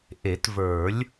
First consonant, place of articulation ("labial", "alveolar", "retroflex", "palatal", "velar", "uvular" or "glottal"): glottal